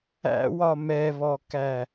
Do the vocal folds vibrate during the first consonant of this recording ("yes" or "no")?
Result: yes